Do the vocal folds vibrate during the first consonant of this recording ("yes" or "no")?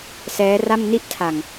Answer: no